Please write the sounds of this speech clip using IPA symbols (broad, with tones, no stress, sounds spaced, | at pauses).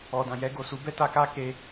ɔ˨ d ã˨ j ɛ˧ ɡ o˨ s u˨˦ b ɛ˦ t a˧ k a˦ k e˧